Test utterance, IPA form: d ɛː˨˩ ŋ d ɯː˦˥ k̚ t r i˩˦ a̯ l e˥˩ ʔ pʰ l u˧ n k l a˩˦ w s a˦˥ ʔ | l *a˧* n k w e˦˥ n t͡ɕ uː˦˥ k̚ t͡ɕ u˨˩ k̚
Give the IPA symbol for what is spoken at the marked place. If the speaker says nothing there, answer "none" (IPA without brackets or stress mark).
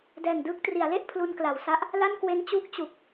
a˥˩